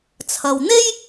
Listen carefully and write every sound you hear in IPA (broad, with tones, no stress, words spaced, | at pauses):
t͡sʰɐ˨wn̪e˥j